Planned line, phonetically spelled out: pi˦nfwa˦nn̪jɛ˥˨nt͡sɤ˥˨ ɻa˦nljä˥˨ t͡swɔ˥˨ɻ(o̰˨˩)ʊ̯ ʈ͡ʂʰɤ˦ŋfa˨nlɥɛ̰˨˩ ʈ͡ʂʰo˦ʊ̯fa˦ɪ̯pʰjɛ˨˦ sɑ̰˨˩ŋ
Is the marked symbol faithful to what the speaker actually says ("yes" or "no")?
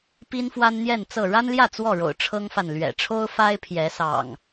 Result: yes